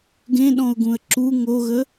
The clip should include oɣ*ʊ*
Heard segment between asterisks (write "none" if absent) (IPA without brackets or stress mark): ə